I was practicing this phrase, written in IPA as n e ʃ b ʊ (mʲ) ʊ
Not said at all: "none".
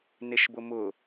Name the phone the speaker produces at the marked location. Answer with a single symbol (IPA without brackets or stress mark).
m